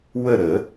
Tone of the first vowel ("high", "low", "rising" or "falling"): falling